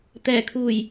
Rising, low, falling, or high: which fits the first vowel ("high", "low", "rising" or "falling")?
low